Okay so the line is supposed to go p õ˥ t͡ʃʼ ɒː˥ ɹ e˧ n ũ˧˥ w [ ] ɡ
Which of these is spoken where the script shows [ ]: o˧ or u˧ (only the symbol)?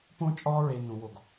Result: o˧